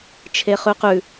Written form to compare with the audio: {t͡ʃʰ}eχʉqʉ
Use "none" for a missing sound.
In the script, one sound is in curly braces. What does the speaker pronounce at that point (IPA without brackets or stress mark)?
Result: t͡ʃʰ